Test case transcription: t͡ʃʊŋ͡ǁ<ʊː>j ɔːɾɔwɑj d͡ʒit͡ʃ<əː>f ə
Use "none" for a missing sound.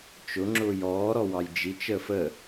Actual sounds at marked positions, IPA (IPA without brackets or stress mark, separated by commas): ʊː, əː